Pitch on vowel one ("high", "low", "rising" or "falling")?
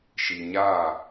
low